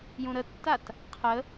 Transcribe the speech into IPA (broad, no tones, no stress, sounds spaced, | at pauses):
j ũ ɾ ə tː a t | qʰ ə